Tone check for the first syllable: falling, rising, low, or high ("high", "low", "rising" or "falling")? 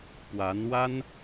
rising